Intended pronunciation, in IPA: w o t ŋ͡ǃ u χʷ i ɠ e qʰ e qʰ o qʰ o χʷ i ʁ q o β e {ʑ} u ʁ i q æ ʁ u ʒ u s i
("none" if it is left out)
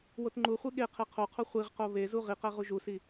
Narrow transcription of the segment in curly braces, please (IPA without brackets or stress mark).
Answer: z